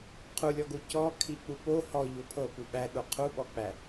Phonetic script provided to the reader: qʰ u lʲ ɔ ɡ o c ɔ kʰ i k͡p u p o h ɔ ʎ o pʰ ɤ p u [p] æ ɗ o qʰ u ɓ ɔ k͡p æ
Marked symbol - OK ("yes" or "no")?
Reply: no